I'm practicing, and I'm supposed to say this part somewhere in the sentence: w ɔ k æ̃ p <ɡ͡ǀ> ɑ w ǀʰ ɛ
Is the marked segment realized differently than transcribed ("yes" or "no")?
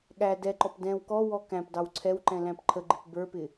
yes